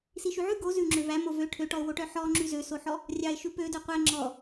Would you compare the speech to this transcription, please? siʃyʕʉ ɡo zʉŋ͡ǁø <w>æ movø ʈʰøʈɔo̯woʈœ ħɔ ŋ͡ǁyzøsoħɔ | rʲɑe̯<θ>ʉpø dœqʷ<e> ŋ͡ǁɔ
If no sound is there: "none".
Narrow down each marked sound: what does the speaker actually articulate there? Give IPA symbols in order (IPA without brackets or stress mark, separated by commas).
v, ʃ, ɛ